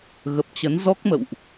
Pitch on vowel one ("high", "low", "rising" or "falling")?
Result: low